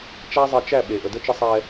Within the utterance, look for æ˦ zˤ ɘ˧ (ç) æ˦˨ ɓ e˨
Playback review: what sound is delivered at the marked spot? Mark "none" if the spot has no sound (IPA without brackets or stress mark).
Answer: t͡ʃ